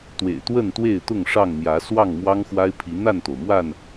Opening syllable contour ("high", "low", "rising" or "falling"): low